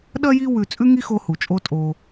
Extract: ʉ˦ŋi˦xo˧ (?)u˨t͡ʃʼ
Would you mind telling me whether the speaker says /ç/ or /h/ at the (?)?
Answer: h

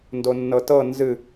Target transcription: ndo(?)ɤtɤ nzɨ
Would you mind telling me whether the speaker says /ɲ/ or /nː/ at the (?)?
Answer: nː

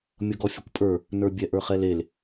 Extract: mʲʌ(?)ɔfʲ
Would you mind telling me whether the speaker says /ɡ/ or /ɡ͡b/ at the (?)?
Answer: ɡ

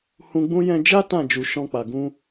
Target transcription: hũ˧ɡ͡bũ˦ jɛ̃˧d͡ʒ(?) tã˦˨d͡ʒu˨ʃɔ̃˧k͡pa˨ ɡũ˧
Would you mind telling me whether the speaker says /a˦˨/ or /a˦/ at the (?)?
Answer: a˦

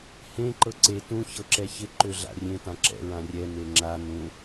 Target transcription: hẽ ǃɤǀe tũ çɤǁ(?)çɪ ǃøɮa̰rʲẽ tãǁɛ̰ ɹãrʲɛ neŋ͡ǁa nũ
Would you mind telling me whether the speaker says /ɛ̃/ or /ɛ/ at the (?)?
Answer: ɛ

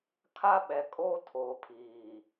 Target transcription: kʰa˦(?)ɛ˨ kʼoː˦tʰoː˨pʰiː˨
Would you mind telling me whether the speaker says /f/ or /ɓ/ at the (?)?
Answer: ɓ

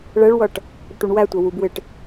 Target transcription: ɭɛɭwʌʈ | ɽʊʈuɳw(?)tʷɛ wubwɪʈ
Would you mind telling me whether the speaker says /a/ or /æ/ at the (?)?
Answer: æ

